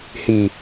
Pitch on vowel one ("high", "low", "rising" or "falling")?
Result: low